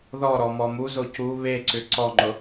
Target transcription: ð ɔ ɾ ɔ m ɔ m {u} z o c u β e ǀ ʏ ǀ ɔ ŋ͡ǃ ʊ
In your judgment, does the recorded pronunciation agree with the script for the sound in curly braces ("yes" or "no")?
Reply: yes